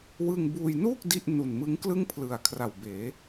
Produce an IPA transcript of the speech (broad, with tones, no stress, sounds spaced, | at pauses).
w ɯ˧ ŋ b uː˧ j n uː˥˩ k̚ d i˥˩ ʔ n u˨˩ n m ɯ˦˥ ŋ k l ɯ˥˩ ŋ pʰ l ɯ˨˩ a̯ kʰ r a˨˩ w b eː˩˦